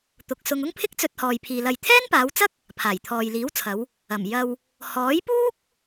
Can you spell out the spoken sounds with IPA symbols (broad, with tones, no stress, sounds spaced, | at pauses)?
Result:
t̪ ʊ˨ k̚ s ʊ˧ ŋ ʊ˥ ŋ pʰ ɪ˥ k̚ t͡s ɵ˧ t̚ h ɔː˨ j pʰ iː˨ l ɐ˨ j t̪ʰ ɛː˥ n p aː˨˧ w t͡s ɐ˥ k̚ | pʰ aː˨˩ j t̪ʰ ɔː˨ j l iː˨˥ w t͡sʰ ɐ˨˧ w | ɐ˨˩ m j ɐ˧ w | h ɔː˨˥ j p uː˥ k̚